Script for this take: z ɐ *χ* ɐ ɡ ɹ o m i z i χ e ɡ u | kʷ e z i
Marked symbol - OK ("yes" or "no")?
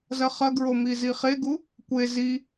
yes